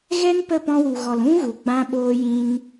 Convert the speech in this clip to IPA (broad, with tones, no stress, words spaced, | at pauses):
ɣɛ˦n pə˦˨pɔ̃˧wu˨ɣɔ˨l ũ˦ɣu˨ɡ͡bã˧ ɓoː˧jĩ˧n